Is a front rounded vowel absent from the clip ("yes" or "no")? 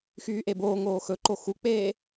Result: no